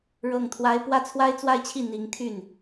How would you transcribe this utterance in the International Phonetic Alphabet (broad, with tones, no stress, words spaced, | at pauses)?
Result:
ɻɤ˥˩ŋt̪ʰwa˥ɪ̯ pwä˥˩t͡sʰwa˥ɪ̯t͡swa˥˧ɪ̯t͡ɕʰi˥˩ n̪i˧˥ŋt̪ʰy˥˩n